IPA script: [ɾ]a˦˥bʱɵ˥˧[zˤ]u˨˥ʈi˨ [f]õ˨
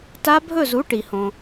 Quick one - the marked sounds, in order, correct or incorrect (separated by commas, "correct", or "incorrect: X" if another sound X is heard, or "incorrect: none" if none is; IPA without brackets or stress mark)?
incorrect: t, incorrect: z, incorrect: h